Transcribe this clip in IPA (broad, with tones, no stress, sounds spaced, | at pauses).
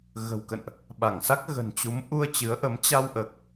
ɣ ə̤˨˩ w k ə̰˧˨ n ʔ | ɓ a˧˩ ŋ s a˦˥ k̚ ɣ ə̤˨˩ n t͡ɕ u˨˦ m ʔ u˧ ə̯ t͡ɕ ɨ˨˦ ə̯ ʔ ə˨˦ m t͡ɕ a˧ w ʔ əː˨˩ k̚